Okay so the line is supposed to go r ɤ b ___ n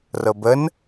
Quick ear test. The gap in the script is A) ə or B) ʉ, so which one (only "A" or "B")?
A